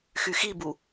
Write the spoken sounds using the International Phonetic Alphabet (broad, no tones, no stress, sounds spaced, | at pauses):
x y x i b u